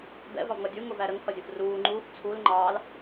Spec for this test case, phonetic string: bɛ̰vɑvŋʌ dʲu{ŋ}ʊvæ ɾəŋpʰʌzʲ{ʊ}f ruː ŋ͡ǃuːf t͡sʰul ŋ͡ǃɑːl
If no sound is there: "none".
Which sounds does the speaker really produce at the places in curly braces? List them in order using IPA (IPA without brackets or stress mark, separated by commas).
ŋ, ʊ